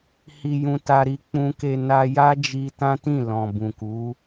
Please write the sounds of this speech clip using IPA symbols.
h i˧ j ũ˧ t a˧ ɾ i˧ k͡p ũ˧ k e˧ n a˦ j a˦ d͡ʒ i˧ t ã˦ t ĩ˦˨ l ɔ̃˨ b ũ˨ k u˨˦

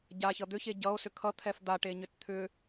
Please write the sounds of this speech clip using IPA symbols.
ɟ a ç ʌ d̪ ʏ ç e ɟ ʌ o̯ s ʏ kʰ ʌ t̪ʰ ɛ f d̪ a ʈ e ɲ ʏ t t̪ʰ ʏ

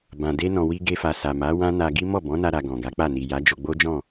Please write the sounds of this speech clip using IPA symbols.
b ã˨ d e˧ n ɔ̃˨ w i˧ ɡ e˧ f a˨ s a˨ m a˨˦ w ã˦ n a˧ ɡ i˦ m ɔ˦˨ b ɔ̃˨˦ n a˧ ɾ a˧ ɡ ɔ̃˨ ɡ a˨˦ k͡p a˦˨ n i˨ j a˨˦ d͡ʒ o˧ ɡ͡b o˦ d͡ʒ ɔ̃˦˨

